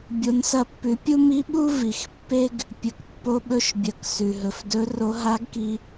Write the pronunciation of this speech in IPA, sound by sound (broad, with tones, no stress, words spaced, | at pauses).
bʲo˩˧nsɐ˧pːʉ˩˧pʲu˥ mi˧˥ɓu˥ vi˩xpːe˥ɡ | pʲɵ˩kpːo˧ɓɵ˧˥ʃbʲɐ˩˧k sʉ˩ɦɵ˩f dɵ˧˥ro˧˥ ɦa˧˥ɡki˧